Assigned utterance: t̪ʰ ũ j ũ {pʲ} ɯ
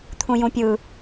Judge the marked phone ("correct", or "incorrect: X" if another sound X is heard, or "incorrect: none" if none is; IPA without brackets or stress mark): correct